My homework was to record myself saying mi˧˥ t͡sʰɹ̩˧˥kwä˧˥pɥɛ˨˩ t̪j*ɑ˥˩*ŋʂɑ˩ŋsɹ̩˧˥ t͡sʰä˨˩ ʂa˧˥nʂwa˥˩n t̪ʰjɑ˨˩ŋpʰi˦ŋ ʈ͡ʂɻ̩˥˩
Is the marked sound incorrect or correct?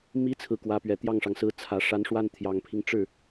correct